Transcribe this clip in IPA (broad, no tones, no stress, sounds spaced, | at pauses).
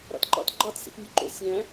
ɾ ɑ̰ t ǃ ɑ̰ t ɡ͡ǃ ɑ t s ḭ t nʲ u ǃ o̰ sʲ æ̃